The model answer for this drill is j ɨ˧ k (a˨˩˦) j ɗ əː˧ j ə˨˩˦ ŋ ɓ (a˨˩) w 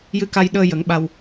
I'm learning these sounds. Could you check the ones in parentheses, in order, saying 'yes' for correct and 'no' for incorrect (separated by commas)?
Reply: no, no